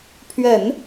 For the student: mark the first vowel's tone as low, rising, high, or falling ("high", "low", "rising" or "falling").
low